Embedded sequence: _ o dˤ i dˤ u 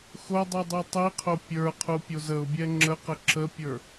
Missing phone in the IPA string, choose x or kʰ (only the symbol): x